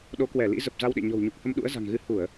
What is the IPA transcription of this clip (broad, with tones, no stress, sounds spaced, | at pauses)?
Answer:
ɗ o˨˦ k w ɛ˧˩ l ḭ˧˥ z ə˨˩ p̚ z a˧ w ɗ ḛ˧˨ ɲ ɔ̤˨˩ w ɲ u˨˩ k̚ h ə˧ m ɗ ṵ˧˥ ə̯ z a̤˨˩ ŋ ɣ ɨ˧ h u˧˩˨ ə̯